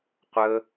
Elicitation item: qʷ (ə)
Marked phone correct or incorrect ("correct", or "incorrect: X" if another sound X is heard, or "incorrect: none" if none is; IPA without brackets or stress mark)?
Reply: correct